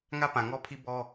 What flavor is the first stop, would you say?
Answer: plain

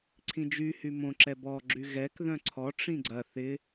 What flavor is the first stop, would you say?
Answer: click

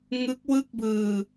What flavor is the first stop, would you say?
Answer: plain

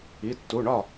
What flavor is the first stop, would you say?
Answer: plain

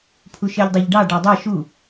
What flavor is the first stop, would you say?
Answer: aspirated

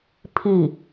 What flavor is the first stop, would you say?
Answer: aspirated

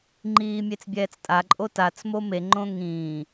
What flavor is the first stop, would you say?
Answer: click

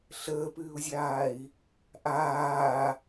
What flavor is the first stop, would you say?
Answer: plain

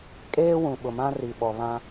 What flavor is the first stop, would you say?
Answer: ejective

